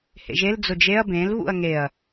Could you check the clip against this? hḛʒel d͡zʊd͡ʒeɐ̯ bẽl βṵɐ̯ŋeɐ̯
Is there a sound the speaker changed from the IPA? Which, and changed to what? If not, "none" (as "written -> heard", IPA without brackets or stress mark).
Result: none